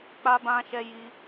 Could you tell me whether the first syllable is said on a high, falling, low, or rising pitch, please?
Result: high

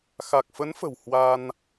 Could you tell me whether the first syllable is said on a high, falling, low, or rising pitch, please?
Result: low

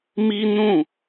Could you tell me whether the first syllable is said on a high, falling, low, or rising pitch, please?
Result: high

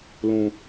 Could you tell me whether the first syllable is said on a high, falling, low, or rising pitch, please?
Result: low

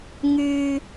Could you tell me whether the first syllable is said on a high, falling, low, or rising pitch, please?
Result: low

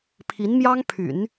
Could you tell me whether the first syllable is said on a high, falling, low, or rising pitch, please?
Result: rising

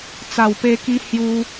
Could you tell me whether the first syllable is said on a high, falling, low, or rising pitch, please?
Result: low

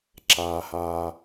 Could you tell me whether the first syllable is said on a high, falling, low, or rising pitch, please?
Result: low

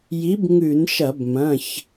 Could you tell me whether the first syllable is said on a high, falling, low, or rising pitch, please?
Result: rising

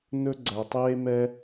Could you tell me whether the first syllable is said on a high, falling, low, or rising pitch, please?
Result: high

